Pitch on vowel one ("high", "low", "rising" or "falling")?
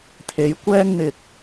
rising